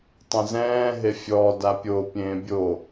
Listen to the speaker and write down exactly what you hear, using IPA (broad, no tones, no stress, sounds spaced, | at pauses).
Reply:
tˤ ɛ̃ z ɛ̃ː ɦ e fʲ ɔ d a pʲ o pʲ ẽː bʲ o